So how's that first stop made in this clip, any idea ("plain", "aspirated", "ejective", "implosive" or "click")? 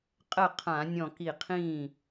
ejective